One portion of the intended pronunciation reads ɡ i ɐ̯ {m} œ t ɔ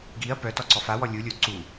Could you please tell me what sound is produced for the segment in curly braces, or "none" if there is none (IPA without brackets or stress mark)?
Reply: p